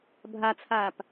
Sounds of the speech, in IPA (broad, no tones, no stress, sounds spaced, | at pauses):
bʱ a t͡sʰ aː p